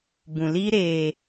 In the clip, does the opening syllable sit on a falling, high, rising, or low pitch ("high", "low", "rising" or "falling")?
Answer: low